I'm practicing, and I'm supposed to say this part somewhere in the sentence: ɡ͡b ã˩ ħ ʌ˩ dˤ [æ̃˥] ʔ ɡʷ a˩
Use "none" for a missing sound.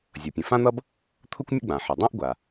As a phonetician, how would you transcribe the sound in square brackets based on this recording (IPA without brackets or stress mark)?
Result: ã˥